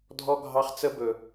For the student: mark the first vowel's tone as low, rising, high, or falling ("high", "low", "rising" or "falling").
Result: high